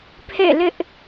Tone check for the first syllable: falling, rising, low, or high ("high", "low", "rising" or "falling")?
falling